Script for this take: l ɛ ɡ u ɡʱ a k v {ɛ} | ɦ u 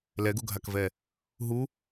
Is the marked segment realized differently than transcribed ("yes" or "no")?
no